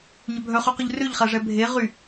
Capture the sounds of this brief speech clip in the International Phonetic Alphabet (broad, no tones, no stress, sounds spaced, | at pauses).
ɲ œ bʱ œ χ y q ɵ ʎ r ø ʎ χ æ ʐ ɛ bʱ e ʁ y